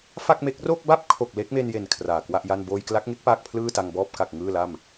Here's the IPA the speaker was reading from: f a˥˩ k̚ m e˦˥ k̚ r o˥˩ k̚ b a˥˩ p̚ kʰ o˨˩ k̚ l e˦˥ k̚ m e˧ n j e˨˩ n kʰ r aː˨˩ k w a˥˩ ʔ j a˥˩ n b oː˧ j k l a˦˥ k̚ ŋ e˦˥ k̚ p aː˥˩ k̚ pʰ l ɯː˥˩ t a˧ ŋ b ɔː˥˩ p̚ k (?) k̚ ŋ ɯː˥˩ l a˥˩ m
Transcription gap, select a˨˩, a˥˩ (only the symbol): a˨˩